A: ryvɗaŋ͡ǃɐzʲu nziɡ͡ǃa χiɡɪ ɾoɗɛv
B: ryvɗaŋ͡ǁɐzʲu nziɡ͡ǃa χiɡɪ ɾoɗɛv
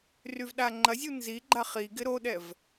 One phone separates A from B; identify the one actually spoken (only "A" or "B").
A